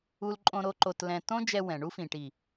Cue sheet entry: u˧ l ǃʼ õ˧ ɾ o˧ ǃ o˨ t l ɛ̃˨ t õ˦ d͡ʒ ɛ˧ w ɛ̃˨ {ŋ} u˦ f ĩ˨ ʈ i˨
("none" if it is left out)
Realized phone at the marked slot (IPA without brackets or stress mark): ɳ